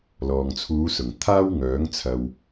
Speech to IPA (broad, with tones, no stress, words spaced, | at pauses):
lɔː˨ŋt͡sʰuː˨˧sʊ˨˩ŋ t̪ʰaː˥wŋœː˨˥ŋt͡sʰɐ˨w